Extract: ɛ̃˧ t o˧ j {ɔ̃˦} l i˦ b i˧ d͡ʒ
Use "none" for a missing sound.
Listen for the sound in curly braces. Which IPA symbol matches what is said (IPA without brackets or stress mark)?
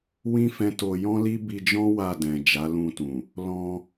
ɔ̃˦